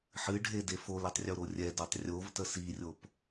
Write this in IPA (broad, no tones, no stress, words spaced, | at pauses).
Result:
ħɨɖʱede folitˤrʲoɾo rʲɛdotˤ rʲovtə sirʲop